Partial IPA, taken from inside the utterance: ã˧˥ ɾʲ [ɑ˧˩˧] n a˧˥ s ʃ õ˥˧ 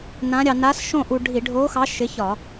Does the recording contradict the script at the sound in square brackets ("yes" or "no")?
yes